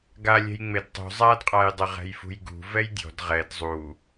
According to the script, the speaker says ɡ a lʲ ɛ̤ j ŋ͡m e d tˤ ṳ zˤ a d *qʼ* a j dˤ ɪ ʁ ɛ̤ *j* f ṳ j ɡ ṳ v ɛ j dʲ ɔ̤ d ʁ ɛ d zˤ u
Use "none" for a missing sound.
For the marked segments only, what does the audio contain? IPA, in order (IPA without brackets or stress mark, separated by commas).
qʼ, j